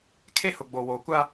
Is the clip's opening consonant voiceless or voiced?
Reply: voiceless